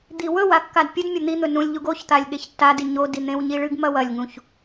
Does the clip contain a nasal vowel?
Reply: yes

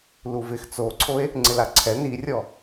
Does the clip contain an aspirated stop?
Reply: yes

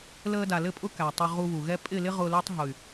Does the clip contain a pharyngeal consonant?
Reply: no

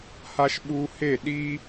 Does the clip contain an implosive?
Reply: yes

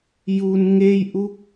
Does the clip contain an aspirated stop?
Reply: no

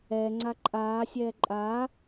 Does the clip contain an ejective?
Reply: yes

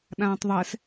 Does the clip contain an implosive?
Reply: yes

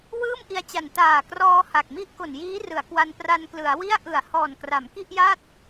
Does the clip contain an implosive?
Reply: no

